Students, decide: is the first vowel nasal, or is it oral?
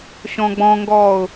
nasal